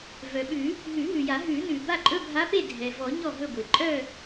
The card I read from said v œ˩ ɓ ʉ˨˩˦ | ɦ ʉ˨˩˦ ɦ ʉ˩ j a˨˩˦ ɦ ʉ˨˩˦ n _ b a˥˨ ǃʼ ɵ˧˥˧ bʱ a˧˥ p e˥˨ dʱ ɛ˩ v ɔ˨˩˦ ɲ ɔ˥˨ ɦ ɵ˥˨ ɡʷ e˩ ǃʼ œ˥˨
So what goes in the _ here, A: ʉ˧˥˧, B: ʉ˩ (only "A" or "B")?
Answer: B